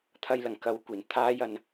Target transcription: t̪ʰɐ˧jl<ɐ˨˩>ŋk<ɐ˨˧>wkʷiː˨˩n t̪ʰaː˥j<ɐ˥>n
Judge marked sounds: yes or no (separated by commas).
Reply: yes, yes, no